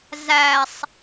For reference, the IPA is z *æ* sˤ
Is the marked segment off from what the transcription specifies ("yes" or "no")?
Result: no